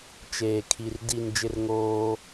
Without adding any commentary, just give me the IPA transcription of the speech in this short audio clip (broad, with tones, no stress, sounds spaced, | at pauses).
t͡ʃ eː˨ kʰ i˨ r d i˦˨ n d͡ʒ ɪ˦ r ŋ oː˦